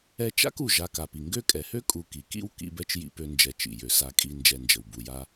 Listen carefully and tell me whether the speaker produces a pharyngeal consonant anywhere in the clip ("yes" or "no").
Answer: no